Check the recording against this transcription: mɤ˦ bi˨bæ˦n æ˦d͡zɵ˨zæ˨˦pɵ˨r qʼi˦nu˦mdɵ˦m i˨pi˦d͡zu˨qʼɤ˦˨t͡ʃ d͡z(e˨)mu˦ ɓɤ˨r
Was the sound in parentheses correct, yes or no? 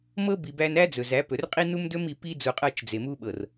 yes